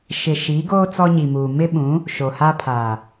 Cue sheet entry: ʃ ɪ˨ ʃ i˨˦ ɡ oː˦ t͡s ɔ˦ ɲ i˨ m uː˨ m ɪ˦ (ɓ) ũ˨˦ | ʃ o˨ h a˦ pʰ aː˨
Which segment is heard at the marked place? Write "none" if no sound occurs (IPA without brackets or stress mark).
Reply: ɓ